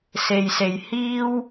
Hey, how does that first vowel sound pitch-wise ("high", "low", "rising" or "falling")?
low